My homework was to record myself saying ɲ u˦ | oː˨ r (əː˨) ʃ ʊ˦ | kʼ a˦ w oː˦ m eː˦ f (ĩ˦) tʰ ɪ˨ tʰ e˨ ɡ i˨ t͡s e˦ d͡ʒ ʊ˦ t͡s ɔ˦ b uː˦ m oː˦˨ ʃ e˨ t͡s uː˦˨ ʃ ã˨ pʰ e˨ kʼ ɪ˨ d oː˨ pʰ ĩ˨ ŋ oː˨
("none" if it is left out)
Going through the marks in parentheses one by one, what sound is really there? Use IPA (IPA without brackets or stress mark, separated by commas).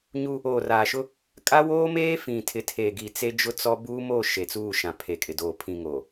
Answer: aː˨, ĩ˨